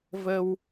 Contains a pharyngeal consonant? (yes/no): no